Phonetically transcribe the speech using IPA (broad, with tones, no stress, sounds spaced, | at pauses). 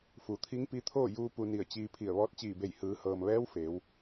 f u˩ t̪ʰ i˧˥ ŋ p i˧˥ t̪ʰ oː˥˨ j uː˧ p u˧ n i˧˩ ə̯ t͡ɕ iː˧ pʰ i˧˩ ə̯ ʋ ɔː˧˥ t̚ t͡ɕ iː˧˩ b e˧˩ j h ɯː˩˧ h ɤː˩ m ʋ ɛː˧˥ w f eː˩˧ w